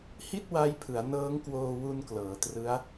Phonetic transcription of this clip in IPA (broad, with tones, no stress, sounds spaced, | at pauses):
h i˥˩ t̚ w a˦˥ j pʰ ɯ˩˦ a̯ n ɤː˦˥ ŋ k w oː˧ w u˧ n k l ɤː˩˦ t r ɯ˦˥ a̯